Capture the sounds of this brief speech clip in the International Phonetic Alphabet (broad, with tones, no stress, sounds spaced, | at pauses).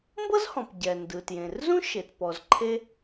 m b ɤ˥ z h ɔ̃˩ p ɟ ɛ˩ n d ɯ˩ t j ẽ˩ r z ũ˥ ʃ e˩ t p ɔ˩ z ǃʰ e˥